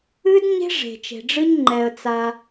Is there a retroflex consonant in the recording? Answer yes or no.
yes